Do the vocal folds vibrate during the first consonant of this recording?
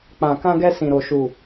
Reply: no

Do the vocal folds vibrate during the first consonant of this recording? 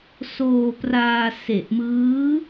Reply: no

